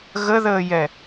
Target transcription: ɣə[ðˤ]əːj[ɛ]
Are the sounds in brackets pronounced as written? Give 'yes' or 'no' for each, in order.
no, yes

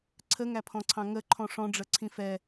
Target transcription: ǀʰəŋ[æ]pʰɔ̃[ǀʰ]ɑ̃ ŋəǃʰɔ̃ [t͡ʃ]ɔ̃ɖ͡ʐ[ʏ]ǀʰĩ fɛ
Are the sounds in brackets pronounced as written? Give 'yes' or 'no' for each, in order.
yes, yes, no, no

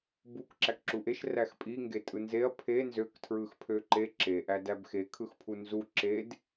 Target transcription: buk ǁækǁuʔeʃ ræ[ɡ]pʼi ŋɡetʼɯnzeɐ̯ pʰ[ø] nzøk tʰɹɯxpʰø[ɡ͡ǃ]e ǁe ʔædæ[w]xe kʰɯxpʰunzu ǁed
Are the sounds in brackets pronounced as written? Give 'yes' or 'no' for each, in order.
no, no, no, no

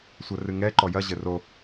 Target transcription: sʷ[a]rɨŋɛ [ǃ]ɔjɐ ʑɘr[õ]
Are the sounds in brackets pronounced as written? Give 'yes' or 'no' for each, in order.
no, yes, no

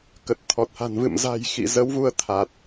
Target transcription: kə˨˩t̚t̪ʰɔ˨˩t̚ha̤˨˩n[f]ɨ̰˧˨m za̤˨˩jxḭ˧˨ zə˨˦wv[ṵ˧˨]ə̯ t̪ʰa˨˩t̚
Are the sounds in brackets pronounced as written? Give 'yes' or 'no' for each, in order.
no, no

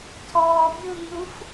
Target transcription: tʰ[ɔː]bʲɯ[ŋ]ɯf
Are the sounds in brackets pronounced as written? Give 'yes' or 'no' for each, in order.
yes, yes

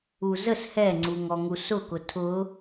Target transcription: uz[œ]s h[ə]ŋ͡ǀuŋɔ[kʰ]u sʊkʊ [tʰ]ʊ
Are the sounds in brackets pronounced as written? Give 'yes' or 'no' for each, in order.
no, no, no, yes

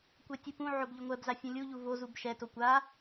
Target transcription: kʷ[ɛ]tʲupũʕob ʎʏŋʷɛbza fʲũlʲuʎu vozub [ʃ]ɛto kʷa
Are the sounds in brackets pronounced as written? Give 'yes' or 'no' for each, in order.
yes, yes

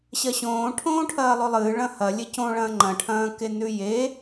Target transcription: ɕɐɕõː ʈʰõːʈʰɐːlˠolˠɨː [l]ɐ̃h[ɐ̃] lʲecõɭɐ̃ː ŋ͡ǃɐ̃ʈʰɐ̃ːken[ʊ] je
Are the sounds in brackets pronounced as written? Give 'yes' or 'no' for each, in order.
no, no, no

